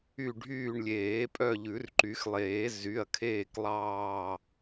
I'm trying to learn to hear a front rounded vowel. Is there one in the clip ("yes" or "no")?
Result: yes